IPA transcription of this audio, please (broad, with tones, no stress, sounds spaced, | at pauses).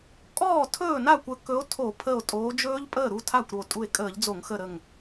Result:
kʼ ɔː˥˩ tʰ ɵː˥˩ n a˥˩ kʷ ə˨˦ k ɵ˨˦ o̯ tʰ o˧˩˧ pʰ ə˧˩ o̯ tʼ oː˨˦ d͡ʒ ɵː˦˥ ʎ pʼ əː˥˩ ɾ u˥˩ tʰ a˥˩ kʷ ɾ o˧˩ tʼ u˧˩ e̯ kʼ əː˧˩˧ ʎ d͡z o˧˩˧ ŋ x ə˧˩ ɾ ə˧˩ ŋ